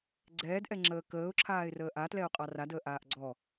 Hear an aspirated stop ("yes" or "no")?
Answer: yes